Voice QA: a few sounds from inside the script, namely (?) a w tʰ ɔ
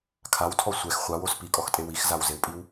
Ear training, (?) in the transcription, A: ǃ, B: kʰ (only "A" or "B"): B